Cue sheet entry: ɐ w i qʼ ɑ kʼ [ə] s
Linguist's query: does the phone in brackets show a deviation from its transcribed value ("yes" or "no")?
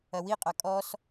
yes